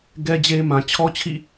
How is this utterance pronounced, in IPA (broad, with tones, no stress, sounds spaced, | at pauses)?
ɡ ɛ˦ d͡ʑ e˦ m ã˨ t͡ɕʰ ɔ˦ t͡ɕʰ ḭ˦˨